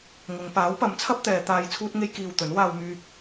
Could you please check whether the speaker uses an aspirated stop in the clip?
yes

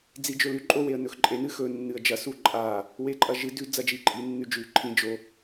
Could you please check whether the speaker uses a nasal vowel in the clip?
yes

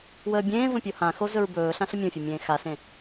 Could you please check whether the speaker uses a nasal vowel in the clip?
yes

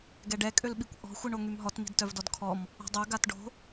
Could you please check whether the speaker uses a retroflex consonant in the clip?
yes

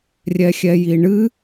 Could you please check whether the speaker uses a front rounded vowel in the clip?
no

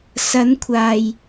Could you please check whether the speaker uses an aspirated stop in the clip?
yes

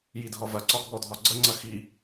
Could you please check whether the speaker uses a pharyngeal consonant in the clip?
no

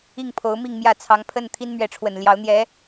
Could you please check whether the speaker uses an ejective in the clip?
no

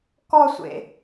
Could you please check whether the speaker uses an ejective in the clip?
no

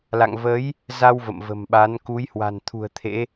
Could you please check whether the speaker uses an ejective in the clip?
no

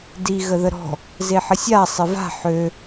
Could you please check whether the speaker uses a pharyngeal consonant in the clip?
yes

